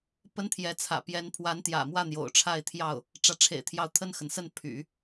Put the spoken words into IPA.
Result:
pə˥nt̪ʰjɛ˧˥t͡sʰä̰˨˩ pjɛ˧˥npʰwa˧˥nt̪jä̰˨˩mwä˥˩ n̪jo̰˨˩ʊ̯ʈ͡ʂʰa˥˧ɪ̯t̪ʰjɑ˥˩ʊ̯ | ʈ͡ʂä˧˥ʈ͡ʂʰḛ˨˩ɪ̯t̪ʰjɑ˧˥ʊ̯ t̪ʰə˥˩nxə˩nsə˥˩n pʰy̰˨˩˦

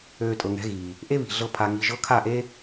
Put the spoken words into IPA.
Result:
øː˧tʼɤ˨ŋɛ̤˨˦ɣiː˨ | ʔe˦βi̤˨ɮɤ˧ pʰa˨ ŋi˨ ʒɤ˧kʰa˦˨ʔe˦

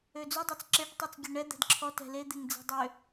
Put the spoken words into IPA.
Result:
ød͡zudˤøt͡s ǁeʈtˤut͡s ɡʲøɳɛ d̪ɛ̤dǁʰɔ tɛ̤ led̪eŋ d͡zɛ̤dˤø

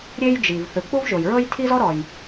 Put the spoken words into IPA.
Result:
ɾʲe˥jd͡ʒi˩v θɯ˩k͡pu˥vʒo˩jɹɤ˥j tʰi˥zɔ˥ ɾɔ˩j

